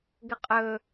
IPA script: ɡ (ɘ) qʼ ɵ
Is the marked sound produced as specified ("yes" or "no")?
yes